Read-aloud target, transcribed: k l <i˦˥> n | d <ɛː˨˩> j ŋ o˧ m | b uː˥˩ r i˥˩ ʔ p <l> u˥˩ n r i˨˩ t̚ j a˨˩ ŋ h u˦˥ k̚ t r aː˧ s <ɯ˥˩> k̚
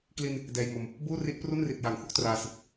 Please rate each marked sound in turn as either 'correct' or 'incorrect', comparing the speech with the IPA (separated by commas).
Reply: incorrect, incorrect, incorrect, incorrect